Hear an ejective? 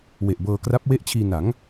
no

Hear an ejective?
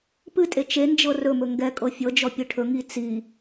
yes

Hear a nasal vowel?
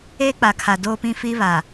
yes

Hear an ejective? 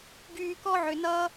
no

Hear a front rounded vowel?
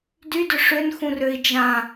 yes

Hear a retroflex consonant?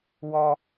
no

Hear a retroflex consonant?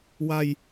no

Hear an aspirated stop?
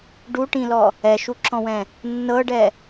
no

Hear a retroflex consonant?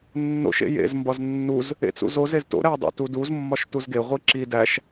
no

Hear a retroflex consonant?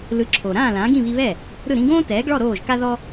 yes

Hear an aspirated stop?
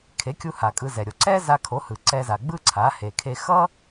yes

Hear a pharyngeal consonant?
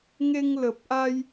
no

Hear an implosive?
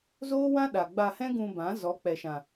yes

